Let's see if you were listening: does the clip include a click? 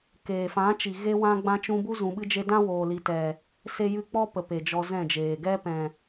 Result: no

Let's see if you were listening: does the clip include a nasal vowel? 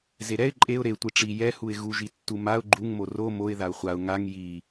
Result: no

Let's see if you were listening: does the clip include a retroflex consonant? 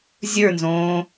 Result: no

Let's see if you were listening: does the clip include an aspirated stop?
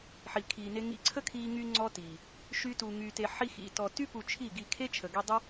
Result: yes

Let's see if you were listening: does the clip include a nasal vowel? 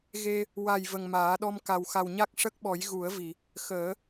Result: no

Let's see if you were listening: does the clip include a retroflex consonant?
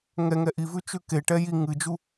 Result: yes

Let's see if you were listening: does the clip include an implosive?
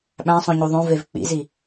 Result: yes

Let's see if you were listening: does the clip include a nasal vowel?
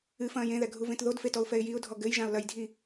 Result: yes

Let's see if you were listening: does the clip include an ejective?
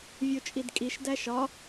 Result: yes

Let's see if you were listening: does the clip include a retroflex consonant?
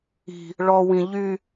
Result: yes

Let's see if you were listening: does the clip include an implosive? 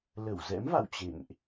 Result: no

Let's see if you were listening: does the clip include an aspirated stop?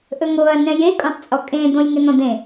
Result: no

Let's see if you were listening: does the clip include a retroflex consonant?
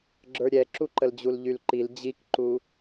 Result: no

